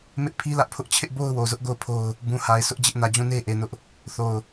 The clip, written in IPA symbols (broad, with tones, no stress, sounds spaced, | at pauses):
m ɪ˦ ʔ pʰ i˦ l ä˦ ʔ pʰ ʊ˦ ʔ t͡ɕʰ ɪ˦ ʔ b o˦ ʊ̯ w o˨ z ʊ˦ ʔ ɡ o˦˨ ʊ̯ pʰ o˦ ʊ̯ | b ũ˨ h a˨ ɪ̯ s ʊ˦ ʔ d͡ʑ ɪ˦ ʔ n ä˨ d͡ʑ ũ˦˨ n e˦ ʔ e˨ n ʊ˦ ʔ | θ o˨ ʊ̯